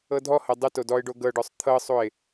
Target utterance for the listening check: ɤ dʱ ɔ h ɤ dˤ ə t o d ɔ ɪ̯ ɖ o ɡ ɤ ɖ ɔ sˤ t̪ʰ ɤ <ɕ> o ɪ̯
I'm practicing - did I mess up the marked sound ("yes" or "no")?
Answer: yes